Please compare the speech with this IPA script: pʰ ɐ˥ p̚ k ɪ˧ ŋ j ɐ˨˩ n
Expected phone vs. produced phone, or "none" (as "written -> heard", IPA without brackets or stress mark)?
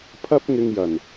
k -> ŋ